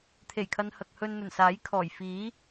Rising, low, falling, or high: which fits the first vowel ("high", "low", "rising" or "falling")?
low